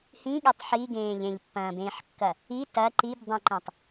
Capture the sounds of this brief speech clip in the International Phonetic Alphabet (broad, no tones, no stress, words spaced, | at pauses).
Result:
hĩɠetˤ ħiɡẽː ʎẽʎpːɐ̃ːbẽːħkːɐ | i tɐ ǃibdˤĩǃẽtˤ